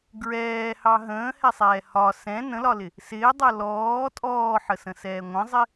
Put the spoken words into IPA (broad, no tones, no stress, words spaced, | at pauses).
ɡɹɛːhɑ ɦə̃ːhɛsˤɛː hɒ sɛ̃ nə̃lɒlɪ | sɪːdˤʌ lɔː tʼɔːħəsə̃sɛː ŋʷə̃zˤɪ